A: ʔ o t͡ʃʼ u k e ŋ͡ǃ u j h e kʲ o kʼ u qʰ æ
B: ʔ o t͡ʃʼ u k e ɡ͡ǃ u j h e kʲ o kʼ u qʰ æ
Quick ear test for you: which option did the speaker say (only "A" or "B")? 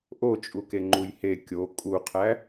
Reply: A